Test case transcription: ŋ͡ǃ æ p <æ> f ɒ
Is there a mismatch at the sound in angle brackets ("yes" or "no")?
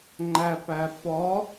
no